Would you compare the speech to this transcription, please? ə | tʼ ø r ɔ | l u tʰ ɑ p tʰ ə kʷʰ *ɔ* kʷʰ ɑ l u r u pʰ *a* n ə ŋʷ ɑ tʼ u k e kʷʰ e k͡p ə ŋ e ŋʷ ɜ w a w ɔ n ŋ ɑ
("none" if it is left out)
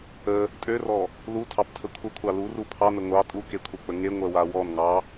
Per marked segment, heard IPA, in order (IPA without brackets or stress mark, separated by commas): ə, ɑ